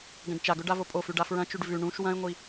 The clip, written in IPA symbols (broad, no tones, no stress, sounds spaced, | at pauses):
ɡ ɐ̃ ɖ t͡ʃ a ɡ ɵ ɖ a v o pʼ o f ʉ ɖ a f ɹ ɐ̃ t͡ʃ ʉ ɖ v ʉ ɳ ũ ʃ w ɐ̃ ɪ̯ ŋʷ i